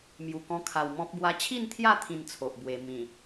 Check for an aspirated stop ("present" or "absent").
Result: present